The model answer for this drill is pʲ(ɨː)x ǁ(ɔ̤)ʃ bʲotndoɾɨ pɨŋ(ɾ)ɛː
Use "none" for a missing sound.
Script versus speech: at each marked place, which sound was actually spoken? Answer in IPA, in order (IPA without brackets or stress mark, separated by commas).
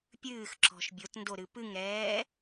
ɨː, ɔ̤, ɾ